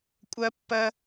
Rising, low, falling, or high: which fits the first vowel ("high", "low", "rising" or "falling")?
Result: high